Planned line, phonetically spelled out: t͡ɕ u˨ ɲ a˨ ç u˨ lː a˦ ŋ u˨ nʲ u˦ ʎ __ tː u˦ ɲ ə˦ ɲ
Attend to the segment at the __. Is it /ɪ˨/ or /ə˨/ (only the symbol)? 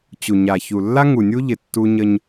ɪ˨